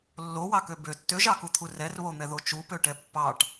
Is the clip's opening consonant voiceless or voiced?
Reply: voiced